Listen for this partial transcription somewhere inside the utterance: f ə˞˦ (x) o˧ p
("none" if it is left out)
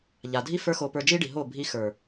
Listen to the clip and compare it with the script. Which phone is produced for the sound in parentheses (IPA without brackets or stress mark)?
x